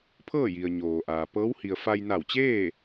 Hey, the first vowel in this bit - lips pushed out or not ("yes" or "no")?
no